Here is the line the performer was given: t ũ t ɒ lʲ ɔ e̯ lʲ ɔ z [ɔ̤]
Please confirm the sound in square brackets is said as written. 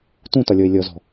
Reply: yes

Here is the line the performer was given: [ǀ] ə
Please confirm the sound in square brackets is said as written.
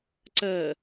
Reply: yes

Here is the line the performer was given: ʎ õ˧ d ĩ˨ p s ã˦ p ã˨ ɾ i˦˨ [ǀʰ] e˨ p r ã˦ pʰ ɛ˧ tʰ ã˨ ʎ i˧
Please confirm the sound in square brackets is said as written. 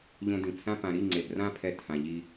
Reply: no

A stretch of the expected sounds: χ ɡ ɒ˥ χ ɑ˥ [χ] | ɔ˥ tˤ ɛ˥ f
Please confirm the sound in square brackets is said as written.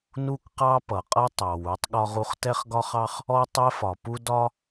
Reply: yes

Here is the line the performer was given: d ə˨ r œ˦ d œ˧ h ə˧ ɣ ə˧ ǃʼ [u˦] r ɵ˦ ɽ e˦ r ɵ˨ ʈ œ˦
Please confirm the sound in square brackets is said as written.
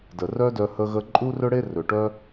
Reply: yes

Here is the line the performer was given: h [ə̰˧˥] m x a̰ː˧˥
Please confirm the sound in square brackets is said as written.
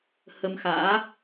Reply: no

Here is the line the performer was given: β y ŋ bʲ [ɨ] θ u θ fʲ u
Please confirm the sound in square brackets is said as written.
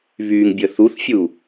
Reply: no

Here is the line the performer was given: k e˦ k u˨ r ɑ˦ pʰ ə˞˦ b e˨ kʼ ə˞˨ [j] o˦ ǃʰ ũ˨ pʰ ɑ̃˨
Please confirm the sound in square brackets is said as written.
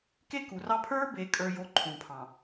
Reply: yes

